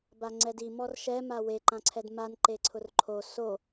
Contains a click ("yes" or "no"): yes